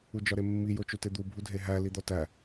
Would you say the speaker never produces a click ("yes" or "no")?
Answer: yes